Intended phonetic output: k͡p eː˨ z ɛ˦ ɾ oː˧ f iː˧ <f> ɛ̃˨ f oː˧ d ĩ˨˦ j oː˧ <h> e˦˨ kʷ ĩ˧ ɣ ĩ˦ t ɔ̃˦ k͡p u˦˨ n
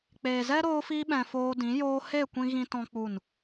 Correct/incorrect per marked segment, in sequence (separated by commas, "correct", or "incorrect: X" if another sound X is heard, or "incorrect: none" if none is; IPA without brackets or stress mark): incorrect: ɓ, correct